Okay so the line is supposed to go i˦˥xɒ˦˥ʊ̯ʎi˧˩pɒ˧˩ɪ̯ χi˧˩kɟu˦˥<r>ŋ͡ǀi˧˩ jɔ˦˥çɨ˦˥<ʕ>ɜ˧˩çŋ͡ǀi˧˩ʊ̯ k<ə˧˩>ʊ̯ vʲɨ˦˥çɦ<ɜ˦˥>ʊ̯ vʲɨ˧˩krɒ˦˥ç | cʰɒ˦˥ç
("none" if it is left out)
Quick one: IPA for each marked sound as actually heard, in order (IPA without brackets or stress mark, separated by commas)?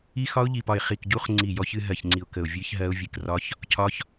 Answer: χ, ɦ, ə˧˩, ɜ˦˥